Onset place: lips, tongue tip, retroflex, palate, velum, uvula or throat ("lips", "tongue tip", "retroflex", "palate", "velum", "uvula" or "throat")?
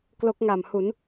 velum